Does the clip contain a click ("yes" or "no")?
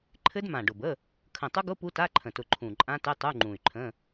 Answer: yes